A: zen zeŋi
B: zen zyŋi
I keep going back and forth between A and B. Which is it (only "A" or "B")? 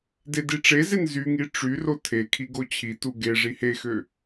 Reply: B